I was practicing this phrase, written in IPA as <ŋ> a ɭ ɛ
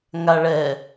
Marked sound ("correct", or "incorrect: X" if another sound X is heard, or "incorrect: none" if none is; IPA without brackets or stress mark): correct